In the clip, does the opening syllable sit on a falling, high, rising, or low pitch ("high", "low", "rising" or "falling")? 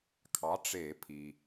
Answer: rising